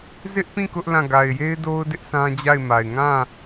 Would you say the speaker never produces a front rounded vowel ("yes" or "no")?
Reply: yes